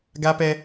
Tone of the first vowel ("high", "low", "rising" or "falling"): high